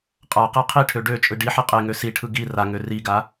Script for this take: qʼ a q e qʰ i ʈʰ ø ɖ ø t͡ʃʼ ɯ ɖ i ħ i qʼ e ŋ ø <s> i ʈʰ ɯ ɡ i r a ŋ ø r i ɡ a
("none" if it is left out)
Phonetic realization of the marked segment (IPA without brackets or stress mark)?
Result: s